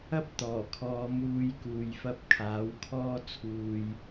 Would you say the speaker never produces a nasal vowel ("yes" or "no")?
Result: yes